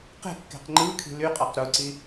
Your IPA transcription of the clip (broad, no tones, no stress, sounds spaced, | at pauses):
q e̤ kː e̤ q ŋ͡ǃ ɯː kʰ i̤ l y qʼ ɑ q ɾ u ǀ i